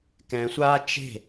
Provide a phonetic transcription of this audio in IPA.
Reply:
k ɛ̃ sʷ aː t͡ʃ e̤

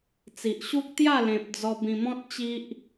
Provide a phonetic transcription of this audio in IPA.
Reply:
t͡s i˨ ʔ ɕ u˦ k̚ t̪ j a˥˧ l ẽ˨ p̚ d͡z ɔ˧ b ĩ˧ m ɔ̃˦ t̚ t͡ɕ i˦ ʔ

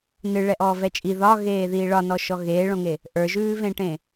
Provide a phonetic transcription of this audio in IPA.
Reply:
n ɨ ɭ ɛ ʔ ɔː v ɛ t͡ʃʼ i ð ɒ ɣ eː ð iː ɭ ɒ n ɔ ʃ ɔ ɣ eː ɭ õ ŋ e | ʔ ə˞ ʒ ʉː v ẽ ʈ ẽ

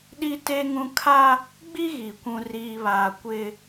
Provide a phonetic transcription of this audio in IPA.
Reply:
ɗ i˦ t e˦ ŋ ũ˦ kʰ a˦ | ɡ͡b i˦ ɣ i˨ kʷ ũ˦ r iː˦ β aː˦ kʷ ɪ˦

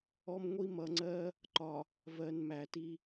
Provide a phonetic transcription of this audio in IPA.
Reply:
ɔ˦ m ŋʷ i˦ m ʌ˨ ŋ͡ǀ ɜ˦ | ǃ ɒ˨ | v ɜ˨ n m æ˨ t i˦

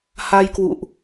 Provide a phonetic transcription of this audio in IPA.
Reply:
h a˧ j k w ṵ˧˨ ʔ

